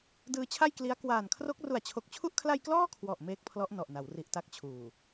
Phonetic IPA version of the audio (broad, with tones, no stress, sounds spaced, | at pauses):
d ɯː˧ t͡ɕʰ a˥˩ j k l i˦˥ a̯ k w aː˨˩ n kʰ r o˦˥ k̚ r u˨˩ a̯ t͡ɕʰ o˨˩ k̚ t͡ɕʰ u˦˥ ʔ kʰ l a˧ j k l ɔː˥˩ kʰ w ɔ˨˩ ʔ m eː˦˥ k̚ pʰ l ɔ˦˥ ʔ n ɔ˨˩ ʔ n a˩˦ w r i˨˩ ʔ t a˦˥ k̚ t͡ɕʰ uː˨˩